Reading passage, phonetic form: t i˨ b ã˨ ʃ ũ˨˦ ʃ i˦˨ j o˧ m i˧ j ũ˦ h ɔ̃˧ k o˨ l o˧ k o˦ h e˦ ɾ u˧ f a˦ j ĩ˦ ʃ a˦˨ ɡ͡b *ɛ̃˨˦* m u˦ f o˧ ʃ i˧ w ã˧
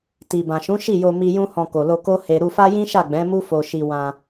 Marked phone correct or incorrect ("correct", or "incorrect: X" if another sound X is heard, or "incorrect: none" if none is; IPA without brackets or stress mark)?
correct